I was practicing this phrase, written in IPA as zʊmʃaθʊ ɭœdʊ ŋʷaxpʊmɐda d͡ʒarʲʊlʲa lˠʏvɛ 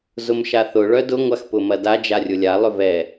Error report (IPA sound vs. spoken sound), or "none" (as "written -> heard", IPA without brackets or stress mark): none